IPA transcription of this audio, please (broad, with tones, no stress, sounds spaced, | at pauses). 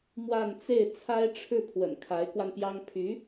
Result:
m w a˥˧ n t͡s e˥˩ ɪ̯ t͡sʰ a˥ ɪ̯ ʈ͡ʂʰ ɻ̩˥˩ pʰ w ə̰˨˩ n kʰ a˧˥ ɪ̯ k w a˧ n p j ɑ˥ ŋ pʰ y˧˥